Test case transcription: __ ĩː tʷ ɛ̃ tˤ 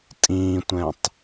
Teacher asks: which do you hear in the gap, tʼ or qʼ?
tʼ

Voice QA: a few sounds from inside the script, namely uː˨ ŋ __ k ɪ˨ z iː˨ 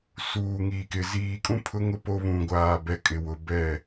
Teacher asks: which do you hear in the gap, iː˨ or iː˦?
iː˨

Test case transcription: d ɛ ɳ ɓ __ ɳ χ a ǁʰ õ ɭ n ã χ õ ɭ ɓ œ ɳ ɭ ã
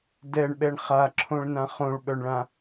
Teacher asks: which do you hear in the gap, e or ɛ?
ɛ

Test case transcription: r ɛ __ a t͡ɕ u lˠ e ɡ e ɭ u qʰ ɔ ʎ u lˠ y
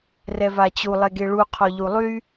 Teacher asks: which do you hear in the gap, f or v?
v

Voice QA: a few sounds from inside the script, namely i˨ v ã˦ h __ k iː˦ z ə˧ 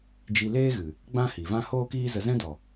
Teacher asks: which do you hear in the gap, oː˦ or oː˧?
oː˦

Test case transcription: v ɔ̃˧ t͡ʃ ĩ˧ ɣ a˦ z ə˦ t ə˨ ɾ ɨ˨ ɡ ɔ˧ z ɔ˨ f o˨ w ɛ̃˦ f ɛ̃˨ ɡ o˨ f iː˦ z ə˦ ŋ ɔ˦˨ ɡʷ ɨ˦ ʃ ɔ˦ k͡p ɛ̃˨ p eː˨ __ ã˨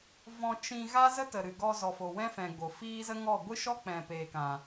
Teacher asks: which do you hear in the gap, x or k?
k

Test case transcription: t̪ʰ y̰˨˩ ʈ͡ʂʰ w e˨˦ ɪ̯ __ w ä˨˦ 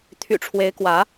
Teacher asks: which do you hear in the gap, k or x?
k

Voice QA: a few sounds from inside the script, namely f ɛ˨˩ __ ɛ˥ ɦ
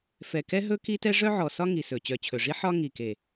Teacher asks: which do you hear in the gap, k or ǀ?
k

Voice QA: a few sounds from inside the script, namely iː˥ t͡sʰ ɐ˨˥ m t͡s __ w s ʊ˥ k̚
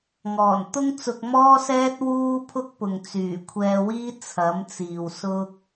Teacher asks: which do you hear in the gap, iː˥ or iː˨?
iː˨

